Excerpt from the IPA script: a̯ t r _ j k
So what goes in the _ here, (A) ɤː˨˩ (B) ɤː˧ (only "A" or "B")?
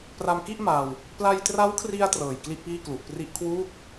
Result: A